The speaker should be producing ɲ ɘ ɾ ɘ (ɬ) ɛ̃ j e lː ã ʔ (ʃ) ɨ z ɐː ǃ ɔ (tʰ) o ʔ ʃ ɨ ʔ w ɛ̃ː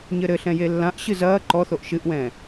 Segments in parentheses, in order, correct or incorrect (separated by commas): correct, incorrect, incorrect